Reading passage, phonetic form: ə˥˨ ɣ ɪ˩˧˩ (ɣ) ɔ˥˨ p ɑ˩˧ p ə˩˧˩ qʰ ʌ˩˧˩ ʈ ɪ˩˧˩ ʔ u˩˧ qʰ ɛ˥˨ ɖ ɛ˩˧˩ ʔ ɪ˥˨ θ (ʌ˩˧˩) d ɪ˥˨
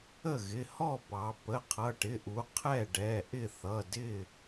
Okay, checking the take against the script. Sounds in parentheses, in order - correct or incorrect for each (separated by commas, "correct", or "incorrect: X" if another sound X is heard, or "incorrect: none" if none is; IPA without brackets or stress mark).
incorrect: h, correct